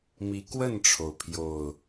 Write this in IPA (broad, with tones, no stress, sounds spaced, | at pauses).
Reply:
m i˨˦ k w ə˥˨ n ʈ͡ʂʰ o˩ ʊ̯ pʰ j o˨˩ ʊ̯